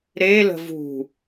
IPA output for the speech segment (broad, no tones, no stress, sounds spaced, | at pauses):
ɾ e l ə̤ v ṳ